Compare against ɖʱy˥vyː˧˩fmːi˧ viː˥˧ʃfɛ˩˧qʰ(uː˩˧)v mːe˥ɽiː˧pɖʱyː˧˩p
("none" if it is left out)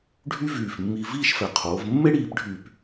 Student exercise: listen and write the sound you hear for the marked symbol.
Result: oː˩˧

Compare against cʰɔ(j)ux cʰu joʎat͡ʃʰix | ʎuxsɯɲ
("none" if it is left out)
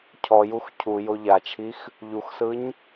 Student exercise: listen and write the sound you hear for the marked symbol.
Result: j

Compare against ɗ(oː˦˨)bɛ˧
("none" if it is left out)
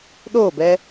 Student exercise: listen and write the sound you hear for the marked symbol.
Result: oː˦˨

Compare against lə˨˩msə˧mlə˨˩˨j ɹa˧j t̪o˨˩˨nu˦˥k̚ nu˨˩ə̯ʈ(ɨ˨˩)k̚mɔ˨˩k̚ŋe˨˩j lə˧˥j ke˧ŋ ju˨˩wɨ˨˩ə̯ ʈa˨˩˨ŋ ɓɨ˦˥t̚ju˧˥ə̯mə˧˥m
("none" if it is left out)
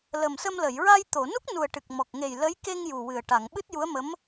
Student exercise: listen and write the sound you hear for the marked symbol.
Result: ɨ˨˩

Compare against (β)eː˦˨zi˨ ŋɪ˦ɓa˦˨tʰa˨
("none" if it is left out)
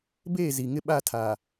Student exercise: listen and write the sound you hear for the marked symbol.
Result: b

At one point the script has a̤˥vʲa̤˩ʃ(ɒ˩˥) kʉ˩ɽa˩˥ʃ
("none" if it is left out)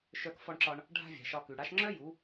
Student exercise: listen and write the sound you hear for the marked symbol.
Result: ɒ˧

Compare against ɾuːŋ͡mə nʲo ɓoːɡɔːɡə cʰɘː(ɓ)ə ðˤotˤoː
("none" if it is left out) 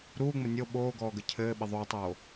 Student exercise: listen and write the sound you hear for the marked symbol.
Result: ɓ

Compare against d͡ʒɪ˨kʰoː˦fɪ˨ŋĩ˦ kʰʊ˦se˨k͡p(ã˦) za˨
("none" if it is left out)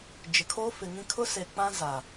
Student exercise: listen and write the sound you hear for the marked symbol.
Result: ã˦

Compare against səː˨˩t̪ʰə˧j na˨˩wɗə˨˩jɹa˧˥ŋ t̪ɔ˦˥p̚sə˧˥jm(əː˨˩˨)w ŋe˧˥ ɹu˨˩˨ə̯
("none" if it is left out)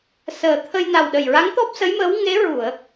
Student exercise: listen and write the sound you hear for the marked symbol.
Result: əː˧˥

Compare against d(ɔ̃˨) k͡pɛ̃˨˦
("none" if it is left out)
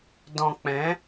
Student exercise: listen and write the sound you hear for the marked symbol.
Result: ɔ̃˨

